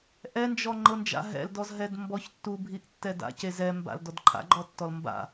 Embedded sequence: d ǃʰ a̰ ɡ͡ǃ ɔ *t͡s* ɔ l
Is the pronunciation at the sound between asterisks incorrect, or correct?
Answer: incorrect